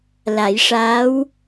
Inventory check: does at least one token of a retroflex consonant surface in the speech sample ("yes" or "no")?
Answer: yes